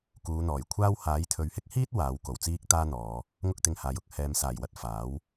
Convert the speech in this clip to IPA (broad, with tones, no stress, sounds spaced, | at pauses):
k uː˨˧ n̪ ɔː˨˩ j kʷʰ aː˥ w h aː˨˥ j t̪ʰ ɵ˨ ɥ h ɪ˥ k̚ h iː˥ t̚ w aː˨˥ w k o˨˩ w t͡s iː˥ k̚ t̪ aː˥ n̪ ɔː˨˧ | ŋ ʊ˥ k̚ t̪ ɪ˧ ŋ h aː˨ j ʊ˨˥ k̚ h ɛː˨ m s aː˨˩ j w ɐ˧ t̚ f aː˨˥ w